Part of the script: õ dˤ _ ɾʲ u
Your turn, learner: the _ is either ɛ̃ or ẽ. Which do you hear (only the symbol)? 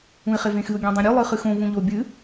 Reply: ẽ